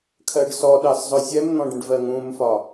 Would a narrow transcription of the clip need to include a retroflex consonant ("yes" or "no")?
yes